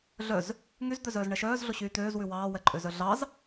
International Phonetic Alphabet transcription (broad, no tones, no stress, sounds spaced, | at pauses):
ɮ œ z | ŋ y z d̪ œ z œː z ɳ ɛ ʃ œː z ɮ o ɕ yː t̪ øː z w ʉ w ɑː w ɛ ǃʼ ø z œ ɮ ɑ z